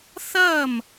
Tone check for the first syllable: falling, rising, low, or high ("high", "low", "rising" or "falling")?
falling